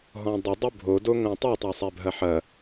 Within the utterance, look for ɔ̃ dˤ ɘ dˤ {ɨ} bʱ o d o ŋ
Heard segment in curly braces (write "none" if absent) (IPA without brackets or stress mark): ɨ